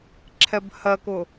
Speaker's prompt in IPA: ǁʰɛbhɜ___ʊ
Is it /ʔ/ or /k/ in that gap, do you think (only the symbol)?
k